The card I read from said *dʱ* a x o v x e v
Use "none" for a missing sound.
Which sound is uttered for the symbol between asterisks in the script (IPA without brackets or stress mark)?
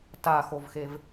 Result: t